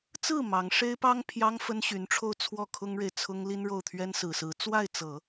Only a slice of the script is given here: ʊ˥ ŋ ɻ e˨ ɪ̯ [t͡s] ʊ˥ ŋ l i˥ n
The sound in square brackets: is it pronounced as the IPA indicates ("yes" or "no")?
no